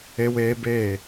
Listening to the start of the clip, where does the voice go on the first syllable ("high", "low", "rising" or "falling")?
high